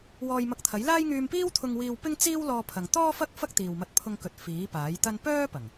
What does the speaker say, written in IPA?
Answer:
w ɔː˧ j m ɐ˧ k̚ t̪ʰ ɐ˨˥ j l aː˥ j ŋ yː˧ m p iː˥ w t̪ʰ ʊ˧ ŋ w iː˧ w p ɪ˥ ŋ t͡s iː˥ w l ɔː˧ pʰ ɐ˨ ŋ t̪ ɔː˥ f ɐ˥ k̚ f ɐ˥ k̚ t̪ iː˨ w m ɐ˧ t̚ pʰ ʊ˧ ŋ k ɵ˨˥ t̚ f iː˨˥ p aː˨˥ j t̪ ɐ˥ n p œː˥ p ɐ˨˩ ŋ

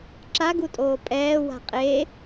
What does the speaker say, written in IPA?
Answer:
ǁ a ɡ u tʼ oː pʼ ɛː w a̤ qʼ e

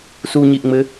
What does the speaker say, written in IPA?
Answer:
s u ɲ i ʔ ŋ͡m ɘ

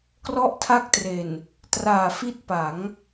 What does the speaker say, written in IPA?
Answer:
k r ɔ˥˩ ʔ tʰ a˥˩ k̚ t r e˨˩ n | t r aː˨˩ f i˥˩ t̚ p a˩˦ ŋ

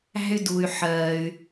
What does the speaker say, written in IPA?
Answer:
æ̤˦ y̯ d u˧ y̯ ħ ɜː˧ y̯

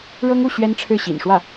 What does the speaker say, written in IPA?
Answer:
ɻ ɤ˥ ŋ u˥˩ ɕ ɥ ɛ˥ n ʈ͡ʂʰ ɻ̩˥˩ ɕ ḭ˨˩ n ʂ w ä˥˩

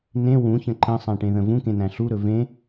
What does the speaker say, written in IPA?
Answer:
n ẽ w ũ ç ə̃ ǃ ə̃ sˤ æ̃ ʈ ẽ ð ə̃ v ũ k ẽ n æ̃ ɬ u ɾ ɵ v ẽ

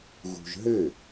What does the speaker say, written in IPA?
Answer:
ɣ ṳ ʒ ɦ ɘ

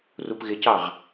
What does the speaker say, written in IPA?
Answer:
r u p ɣ ɪ c ɑ ʁ

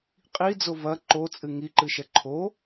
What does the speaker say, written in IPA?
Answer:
qʼ i d͡z o v ɐ ǃ o t͡sʼ ɨ ŋ i ǃ ɨ ʃ ɛ ǃʰ o

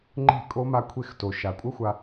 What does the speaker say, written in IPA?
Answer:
ŋ͡ǃ e̤˦˨ kʼ o˦ m a˧ kʷʰ e˧ x t o˨ ʃ a˨ kʷʼ ʌ˦ xʷ a˧

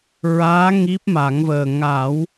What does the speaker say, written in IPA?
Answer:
ɹ aː˧˥ ŋ i˦˥ p̚ m a˨˩˦ ŋ v əː˨˩ ŋ a˨˩˦ w

